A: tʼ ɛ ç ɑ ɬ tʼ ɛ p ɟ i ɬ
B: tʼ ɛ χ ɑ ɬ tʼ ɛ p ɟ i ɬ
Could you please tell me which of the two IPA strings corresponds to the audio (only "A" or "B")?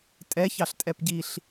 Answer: A